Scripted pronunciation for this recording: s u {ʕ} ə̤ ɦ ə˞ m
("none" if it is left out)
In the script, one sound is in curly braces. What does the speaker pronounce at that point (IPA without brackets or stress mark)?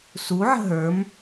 ʕ